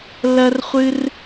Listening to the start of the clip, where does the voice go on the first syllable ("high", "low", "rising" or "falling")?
high